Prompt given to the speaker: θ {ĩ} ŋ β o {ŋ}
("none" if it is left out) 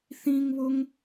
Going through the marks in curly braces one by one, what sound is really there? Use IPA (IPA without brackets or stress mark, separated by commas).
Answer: ĩ, ŋ